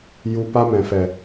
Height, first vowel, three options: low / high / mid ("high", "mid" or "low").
high